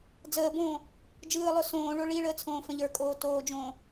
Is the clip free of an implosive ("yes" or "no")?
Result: yes